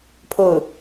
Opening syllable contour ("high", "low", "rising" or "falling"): falling